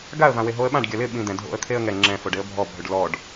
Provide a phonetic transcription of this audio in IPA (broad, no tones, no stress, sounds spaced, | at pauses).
ɡ a ə̯ v ã w e ɦ o ə̯ ɓ ã ɖ ɡʲ ɐ l ɪ ɓ ĩ d̪ ɛ̃ dʱ o̰ ə̯ t̪ʰ e ə̯ ŋ ɛ ŋ͡ǁ ɛ̃ f o ɖ e ə̯ bʱ ɔ bʱ ø ɖ l ɔ ɖ